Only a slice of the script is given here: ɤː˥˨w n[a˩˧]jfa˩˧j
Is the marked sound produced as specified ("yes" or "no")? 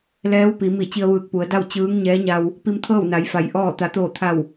yes